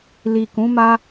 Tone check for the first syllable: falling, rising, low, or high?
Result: low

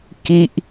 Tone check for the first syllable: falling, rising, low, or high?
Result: high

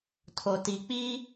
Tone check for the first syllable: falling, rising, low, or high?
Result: low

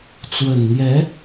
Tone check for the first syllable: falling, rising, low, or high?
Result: low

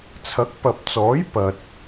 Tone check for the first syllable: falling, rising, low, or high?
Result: rising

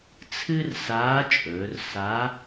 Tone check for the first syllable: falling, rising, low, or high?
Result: high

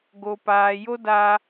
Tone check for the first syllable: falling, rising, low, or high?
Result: high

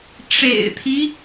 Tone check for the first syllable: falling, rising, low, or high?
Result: low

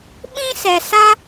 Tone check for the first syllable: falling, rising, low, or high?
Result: high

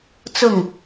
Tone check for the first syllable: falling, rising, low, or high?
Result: falling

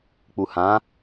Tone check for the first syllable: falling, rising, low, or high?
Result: low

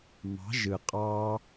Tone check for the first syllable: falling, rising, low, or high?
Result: rising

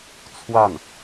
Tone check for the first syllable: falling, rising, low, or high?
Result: falling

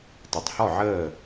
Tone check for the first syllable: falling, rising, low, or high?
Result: low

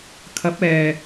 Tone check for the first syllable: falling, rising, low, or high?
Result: rising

